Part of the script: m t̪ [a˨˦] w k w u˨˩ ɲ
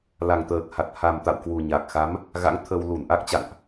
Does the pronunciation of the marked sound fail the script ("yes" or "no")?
yes